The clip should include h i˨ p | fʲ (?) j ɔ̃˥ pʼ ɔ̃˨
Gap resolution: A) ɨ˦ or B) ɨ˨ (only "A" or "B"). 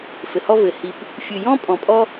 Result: B